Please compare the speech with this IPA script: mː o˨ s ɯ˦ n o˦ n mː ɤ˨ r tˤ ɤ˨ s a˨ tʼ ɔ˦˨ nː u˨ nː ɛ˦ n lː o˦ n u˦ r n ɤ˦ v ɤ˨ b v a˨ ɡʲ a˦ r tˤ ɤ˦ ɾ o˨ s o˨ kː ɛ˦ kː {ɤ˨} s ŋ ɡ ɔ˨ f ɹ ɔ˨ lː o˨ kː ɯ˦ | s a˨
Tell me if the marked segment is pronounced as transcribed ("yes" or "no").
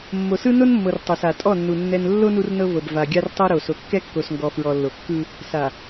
no